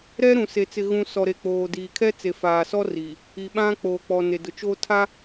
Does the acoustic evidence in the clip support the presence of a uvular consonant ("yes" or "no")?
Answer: no